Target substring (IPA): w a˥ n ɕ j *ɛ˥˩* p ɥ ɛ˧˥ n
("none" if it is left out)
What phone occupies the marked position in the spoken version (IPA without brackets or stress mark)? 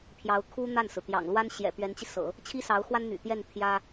ɛ̰˨˩